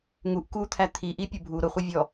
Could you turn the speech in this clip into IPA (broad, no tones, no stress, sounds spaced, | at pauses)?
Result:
ŋ u ʔ k u t̪ʰ æ t̪ʰ i ʔ i pʲ ʊ bʱ u ɾ ʊ χʷ i vʲ ɔ